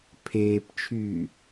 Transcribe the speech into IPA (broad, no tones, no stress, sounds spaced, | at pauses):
pʰ eː p t͡ʃʰ yː